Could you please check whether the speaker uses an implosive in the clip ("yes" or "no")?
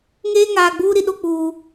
yes